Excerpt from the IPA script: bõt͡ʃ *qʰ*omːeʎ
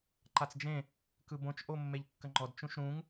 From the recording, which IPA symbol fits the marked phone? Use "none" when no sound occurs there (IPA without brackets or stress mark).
ʔ